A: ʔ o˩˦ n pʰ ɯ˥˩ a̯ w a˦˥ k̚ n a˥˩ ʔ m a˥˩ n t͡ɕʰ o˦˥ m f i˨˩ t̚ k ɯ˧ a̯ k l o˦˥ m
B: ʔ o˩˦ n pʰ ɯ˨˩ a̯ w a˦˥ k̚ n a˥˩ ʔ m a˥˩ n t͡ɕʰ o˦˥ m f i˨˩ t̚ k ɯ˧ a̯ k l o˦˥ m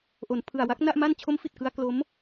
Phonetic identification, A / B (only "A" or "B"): B